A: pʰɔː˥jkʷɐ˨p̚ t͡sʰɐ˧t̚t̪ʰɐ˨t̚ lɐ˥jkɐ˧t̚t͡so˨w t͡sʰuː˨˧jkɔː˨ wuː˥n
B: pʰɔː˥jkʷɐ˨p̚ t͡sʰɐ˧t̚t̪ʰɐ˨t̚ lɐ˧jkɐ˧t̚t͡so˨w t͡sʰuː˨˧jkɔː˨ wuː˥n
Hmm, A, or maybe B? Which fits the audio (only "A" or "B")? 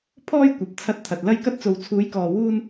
B